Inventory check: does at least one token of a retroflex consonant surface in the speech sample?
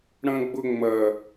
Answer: yes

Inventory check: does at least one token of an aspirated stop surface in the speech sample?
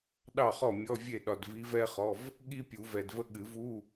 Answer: no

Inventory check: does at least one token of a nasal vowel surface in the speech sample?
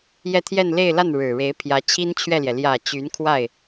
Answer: no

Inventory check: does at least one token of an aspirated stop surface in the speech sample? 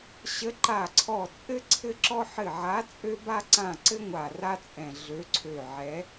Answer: yes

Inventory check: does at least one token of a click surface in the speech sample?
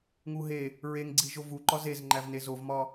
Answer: yes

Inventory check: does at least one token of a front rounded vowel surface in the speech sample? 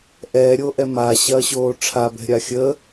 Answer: no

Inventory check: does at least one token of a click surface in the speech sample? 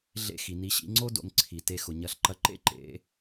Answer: yes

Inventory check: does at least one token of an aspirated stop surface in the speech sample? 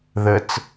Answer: no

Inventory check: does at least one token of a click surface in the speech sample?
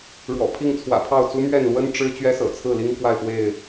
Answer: no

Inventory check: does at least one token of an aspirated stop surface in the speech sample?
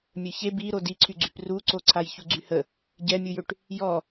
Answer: yes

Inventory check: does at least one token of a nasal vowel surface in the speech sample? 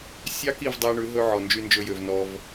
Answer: no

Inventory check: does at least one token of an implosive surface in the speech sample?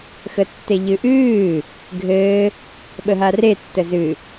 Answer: yes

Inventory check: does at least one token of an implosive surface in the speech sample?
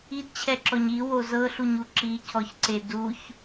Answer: no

